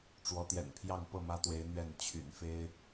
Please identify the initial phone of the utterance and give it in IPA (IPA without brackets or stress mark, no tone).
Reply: ʈ͡ʂ